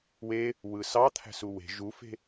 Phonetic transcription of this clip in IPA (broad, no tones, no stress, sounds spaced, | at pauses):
w e | w ɯ s ɑ t̪ʰ æ̤ s u w e̤ ʒ u f e̤